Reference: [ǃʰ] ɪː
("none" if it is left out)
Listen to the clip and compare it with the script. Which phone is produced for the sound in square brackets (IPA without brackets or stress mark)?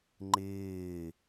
ŋ͡ǃ